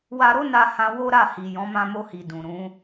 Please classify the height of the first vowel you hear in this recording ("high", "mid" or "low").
low